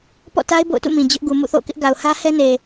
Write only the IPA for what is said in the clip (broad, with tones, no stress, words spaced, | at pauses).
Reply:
pɔ̰˦˨ta˦ɪ̯ bo̰˦˨ʊ̯tṵ˦˨mĩ˨ d͡ʑʊ˦ʔ ɡu˨ mṵ˦˨θo̰˦˨kɪ˦ʔ ɡa˨ʊ̯hä˦hɛ˦ne˨